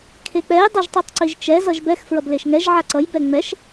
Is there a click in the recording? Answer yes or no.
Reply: yes